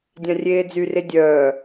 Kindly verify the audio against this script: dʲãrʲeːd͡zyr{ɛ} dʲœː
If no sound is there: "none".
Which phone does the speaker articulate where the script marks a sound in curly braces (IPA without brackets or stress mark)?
e